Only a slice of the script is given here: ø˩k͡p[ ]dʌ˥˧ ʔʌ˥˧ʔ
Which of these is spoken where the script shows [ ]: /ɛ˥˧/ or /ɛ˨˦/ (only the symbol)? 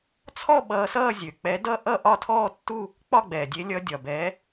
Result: ɛ˨˦